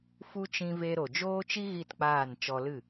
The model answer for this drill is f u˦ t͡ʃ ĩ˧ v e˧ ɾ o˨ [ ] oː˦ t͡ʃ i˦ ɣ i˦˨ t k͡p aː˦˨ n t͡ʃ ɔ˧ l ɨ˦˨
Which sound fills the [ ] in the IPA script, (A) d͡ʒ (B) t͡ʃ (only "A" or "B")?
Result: A